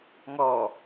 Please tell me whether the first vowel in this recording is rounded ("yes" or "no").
yes